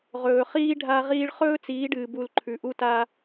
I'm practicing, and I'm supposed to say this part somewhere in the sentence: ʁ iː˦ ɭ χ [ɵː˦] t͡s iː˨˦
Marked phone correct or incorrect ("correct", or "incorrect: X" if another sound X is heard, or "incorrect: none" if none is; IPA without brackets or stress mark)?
correct